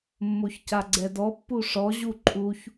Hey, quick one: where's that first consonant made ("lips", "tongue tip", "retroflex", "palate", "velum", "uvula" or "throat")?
lips